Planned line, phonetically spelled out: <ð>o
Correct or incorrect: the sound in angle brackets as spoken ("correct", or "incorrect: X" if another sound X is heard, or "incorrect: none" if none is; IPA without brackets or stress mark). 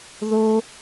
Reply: correct